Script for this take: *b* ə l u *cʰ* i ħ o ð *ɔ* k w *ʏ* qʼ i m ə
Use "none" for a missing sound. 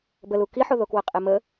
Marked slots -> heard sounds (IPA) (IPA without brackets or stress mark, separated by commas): b, k, o, ə